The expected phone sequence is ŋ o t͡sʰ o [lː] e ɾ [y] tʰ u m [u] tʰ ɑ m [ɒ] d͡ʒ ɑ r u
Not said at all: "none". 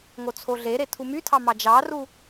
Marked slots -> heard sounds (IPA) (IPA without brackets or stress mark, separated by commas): ɮ, e, y, ɑ